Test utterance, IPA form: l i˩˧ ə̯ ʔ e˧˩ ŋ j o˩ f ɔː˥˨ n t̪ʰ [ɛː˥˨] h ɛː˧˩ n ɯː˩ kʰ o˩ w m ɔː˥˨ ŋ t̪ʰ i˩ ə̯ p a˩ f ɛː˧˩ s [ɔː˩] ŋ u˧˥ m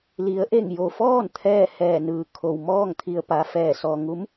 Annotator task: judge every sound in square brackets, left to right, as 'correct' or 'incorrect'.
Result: correct, correct

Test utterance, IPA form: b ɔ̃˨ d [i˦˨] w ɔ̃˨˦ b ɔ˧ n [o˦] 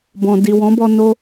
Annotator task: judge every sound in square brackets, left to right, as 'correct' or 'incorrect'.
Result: incorrect: i˨, correct

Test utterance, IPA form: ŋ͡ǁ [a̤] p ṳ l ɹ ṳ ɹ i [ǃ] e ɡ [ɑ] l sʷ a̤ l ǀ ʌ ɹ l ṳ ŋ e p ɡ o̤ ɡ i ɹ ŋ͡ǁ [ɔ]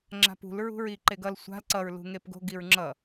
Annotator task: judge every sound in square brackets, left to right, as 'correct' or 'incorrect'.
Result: correct, correct, incorrect: ʌ, incorrect: ʌ

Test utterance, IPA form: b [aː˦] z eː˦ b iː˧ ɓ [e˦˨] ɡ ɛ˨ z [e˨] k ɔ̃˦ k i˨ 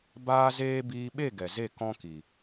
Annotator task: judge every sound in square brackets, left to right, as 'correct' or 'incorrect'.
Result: correct, correct, incorrect: e˦˨

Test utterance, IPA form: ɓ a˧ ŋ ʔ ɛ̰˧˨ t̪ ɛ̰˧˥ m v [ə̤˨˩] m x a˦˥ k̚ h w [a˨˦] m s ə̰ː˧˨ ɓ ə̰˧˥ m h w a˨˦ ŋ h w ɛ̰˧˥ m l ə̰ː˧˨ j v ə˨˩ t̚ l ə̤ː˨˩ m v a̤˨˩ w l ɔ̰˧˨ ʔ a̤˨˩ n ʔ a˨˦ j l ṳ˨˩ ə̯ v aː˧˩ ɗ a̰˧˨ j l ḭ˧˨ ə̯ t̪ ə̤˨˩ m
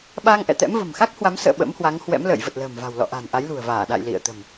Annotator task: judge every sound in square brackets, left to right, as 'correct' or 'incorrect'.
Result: correct, correct

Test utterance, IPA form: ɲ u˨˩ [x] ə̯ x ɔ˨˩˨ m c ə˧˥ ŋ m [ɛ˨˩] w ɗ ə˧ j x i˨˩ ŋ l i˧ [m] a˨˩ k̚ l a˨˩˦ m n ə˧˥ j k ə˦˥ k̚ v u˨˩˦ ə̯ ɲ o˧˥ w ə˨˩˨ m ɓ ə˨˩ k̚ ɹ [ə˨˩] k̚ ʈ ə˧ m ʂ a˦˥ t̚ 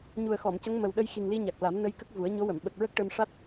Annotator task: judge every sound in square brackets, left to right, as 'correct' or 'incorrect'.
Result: incorrect: none, incorrect: ə˨˩, incorrect: ɲ, incorrect: ə˦˥

